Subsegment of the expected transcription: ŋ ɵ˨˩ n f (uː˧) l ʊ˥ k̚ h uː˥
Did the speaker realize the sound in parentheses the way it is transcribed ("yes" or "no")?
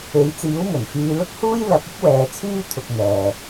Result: no